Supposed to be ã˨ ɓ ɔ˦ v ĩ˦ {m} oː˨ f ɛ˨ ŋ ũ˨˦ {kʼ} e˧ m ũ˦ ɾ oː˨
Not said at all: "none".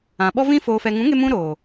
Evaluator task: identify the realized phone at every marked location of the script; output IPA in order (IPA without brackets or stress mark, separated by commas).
f, ŋ